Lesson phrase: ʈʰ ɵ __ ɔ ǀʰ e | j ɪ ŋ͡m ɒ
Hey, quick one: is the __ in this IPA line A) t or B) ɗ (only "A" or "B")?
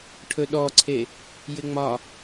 B